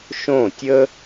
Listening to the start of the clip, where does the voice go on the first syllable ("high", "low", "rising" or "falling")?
falling